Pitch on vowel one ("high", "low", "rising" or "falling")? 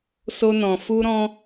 high